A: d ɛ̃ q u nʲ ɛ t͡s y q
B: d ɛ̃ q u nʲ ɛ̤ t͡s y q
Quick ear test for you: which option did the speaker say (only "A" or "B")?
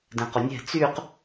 B